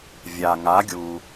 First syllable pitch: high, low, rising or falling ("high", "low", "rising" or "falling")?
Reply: low